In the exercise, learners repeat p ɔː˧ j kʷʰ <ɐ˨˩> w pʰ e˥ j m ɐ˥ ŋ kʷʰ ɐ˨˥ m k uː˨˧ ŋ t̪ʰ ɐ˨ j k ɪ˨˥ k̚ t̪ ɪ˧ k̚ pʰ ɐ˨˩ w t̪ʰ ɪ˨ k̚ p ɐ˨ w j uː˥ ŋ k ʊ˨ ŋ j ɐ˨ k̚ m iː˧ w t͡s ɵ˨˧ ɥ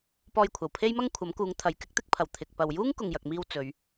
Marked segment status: correct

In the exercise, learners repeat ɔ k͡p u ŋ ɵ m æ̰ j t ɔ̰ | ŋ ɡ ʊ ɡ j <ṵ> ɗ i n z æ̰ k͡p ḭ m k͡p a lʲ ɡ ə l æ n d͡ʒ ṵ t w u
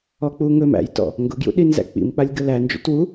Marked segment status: correct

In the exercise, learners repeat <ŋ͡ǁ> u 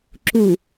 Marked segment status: incorrect: ǁ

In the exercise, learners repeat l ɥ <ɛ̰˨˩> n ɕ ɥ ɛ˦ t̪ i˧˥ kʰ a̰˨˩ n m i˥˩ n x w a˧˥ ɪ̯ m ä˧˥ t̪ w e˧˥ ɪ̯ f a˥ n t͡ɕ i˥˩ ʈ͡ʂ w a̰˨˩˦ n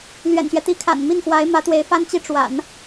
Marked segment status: correct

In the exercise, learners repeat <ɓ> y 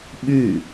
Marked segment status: correct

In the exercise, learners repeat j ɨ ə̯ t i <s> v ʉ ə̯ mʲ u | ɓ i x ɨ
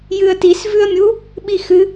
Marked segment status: correct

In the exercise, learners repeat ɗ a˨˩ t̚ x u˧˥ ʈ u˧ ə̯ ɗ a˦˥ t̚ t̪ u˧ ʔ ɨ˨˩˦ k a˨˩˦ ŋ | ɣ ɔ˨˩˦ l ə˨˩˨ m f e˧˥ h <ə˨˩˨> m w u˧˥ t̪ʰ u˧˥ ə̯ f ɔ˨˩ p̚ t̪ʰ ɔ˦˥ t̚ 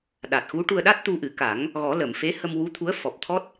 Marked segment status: incorrect: ə˧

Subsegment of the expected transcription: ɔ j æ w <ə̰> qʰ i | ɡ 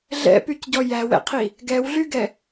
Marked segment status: incorrect: ɛ̰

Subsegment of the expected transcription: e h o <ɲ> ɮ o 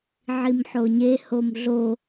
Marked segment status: incorrect: m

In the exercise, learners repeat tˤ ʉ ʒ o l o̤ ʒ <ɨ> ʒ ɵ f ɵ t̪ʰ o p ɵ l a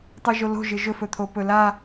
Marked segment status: correct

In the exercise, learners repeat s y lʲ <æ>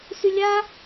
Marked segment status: incorrect: a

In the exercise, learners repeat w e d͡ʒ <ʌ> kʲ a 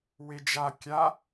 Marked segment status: incorrect: a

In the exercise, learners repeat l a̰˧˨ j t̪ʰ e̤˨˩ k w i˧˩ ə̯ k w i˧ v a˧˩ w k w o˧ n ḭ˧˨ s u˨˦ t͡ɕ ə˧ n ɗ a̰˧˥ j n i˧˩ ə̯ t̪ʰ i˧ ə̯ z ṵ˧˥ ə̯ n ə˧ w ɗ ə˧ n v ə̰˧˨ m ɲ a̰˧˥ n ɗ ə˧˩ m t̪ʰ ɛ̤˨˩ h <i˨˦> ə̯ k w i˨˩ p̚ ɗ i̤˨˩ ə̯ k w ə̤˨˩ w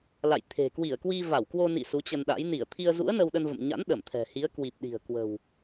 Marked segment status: correct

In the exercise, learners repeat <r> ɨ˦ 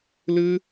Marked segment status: incorrect: l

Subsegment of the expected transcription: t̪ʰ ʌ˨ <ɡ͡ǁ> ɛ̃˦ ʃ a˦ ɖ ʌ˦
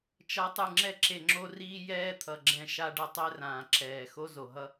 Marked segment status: correct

